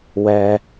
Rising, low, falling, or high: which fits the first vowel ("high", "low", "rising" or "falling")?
high